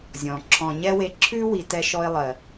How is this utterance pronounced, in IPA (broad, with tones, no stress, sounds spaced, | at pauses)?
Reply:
zʲ ɔ̃˨ ǁʰ ɔ̃˨ ɲ ɛ˦ w e˧ ǁʰ ʉ˦ w i˧ t ɛ˧ ʃ ɔ˧ ɪ̯ lˠ ɜ˨